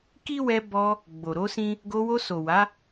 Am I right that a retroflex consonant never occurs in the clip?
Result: yes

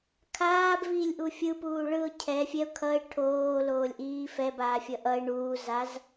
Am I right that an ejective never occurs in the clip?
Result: yes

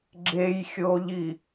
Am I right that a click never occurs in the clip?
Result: no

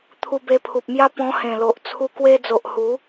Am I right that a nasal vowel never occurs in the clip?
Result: no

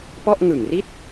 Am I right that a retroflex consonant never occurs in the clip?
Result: yes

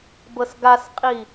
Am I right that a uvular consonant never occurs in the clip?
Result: no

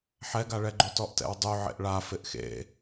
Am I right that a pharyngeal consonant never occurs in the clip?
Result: no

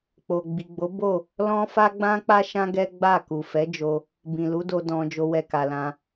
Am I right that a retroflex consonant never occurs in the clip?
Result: yes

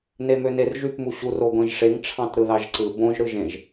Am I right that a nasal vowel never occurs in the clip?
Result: no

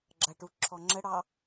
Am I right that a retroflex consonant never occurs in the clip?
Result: no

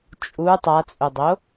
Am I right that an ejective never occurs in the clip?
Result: no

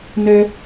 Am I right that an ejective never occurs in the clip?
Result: yes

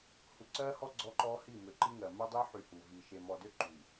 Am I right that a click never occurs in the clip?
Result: no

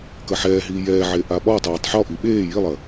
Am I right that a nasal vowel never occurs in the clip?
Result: yes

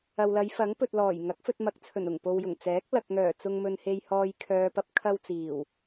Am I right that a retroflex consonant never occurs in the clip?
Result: yes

